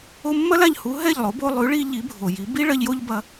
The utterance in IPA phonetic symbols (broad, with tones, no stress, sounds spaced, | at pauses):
o˧ mː ɐ˥ l a˥˩ ʎ h u˩˥ ɦ ɛ˥˩ ʎ lˠ o˩˥ b o˧ lˠ ʉ˩˥ ɭ i˧ ʎ i˩˥ bʱ o˩ j i˩˥ b i˥ ɭ ɐ˧ ʎ j o˥ ʎ b ɐ˧